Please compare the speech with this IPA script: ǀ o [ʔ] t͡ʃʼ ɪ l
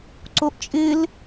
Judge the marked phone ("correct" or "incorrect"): correct